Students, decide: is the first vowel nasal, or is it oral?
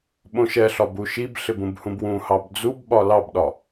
nasal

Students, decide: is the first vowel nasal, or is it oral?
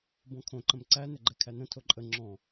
nasal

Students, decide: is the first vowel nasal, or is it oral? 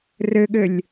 oral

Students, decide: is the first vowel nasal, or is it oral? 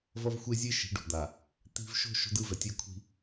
oral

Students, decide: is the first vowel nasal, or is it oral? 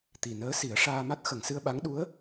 oral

